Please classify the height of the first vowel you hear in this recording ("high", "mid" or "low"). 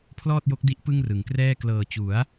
mid